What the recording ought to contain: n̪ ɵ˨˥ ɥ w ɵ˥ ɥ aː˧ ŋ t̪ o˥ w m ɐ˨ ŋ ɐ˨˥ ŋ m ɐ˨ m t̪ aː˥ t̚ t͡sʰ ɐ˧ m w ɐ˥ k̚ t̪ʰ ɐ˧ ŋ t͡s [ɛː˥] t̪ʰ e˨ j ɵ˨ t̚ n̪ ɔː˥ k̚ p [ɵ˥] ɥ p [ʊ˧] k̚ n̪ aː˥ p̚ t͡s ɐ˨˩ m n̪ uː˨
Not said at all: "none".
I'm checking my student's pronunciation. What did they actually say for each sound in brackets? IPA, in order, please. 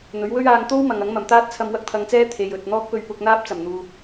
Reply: ɛː˥, ɵ˧, ʊ˧

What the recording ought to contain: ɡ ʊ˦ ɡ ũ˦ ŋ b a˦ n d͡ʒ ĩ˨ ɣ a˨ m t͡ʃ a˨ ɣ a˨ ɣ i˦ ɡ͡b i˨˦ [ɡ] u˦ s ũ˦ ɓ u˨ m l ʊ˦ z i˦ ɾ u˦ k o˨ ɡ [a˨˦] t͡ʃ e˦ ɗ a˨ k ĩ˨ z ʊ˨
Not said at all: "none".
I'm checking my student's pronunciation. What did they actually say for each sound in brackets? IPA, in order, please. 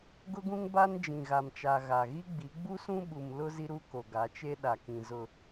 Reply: ɡ͡b, a˨˦

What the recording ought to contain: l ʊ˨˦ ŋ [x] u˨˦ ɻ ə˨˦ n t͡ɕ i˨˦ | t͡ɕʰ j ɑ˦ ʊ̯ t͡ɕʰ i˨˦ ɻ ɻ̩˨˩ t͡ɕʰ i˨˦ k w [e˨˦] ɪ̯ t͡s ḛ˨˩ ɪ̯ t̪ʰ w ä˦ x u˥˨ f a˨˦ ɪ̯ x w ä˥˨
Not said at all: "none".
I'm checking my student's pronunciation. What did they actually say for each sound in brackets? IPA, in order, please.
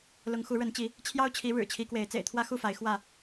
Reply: x, e˨˦

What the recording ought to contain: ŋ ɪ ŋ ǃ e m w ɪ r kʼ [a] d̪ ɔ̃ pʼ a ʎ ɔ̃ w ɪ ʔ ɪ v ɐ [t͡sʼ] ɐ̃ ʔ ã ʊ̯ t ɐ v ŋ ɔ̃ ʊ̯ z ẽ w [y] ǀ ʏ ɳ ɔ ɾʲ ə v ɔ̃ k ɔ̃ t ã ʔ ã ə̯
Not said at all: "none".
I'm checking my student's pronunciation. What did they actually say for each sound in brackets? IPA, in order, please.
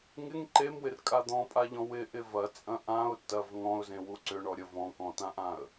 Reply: a, t͡sʼ, u

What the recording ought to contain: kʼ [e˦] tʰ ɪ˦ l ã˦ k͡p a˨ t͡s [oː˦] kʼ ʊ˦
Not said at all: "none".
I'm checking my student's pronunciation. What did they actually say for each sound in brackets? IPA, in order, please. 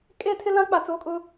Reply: e˦, oː˦

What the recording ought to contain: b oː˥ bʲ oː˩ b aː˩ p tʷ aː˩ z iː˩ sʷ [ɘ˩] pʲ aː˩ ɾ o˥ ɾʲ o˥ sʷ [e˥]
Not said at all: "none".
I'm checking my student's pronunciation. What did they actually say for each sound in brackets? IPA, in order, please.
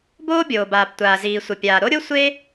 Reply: ɘ˩, e˥

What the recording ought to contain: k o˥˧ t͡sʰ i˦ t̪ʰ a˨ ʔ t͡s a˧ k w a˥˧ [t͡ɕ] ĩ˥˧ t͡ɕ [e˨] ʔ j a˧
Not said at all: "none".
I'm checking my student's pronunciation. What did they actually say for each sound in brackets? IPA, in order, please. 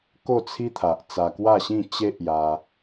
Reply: ɕ, e˦

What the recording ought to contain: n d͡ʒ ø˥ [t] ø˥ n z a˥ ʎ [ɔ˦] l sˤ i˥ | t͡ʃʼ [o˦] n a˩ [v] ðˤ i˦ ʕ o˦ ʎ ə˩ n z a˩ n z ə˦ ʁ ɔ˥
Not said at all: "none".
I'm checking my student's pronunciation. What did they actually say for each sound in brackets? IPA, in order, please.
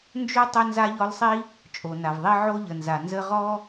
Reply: tˤ, ɔ˦, o˩, v

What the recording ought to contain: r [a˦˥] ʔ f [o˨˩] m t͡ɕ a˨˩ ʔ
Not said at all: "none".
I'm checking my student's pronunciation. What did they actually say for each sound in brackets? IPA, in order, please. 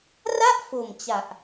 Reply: a˥˩, o˨˩

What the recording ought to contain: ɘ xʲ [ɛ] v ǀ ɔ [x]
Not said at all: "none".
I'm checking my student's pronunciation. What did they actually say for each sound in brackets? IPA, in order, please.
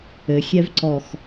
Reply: ɛ, x

